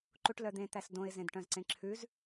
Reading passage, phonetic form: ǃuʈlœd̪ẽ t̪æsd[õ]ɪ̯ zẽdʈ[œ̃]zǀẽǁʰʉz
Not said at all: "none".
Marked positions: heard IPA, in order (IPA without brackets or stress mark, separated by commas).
õ, œ̃